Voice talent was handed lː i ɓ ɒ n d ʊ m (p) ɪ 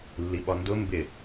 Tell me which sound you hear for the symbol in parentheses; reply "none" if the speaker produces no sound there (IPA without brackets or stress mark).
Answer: b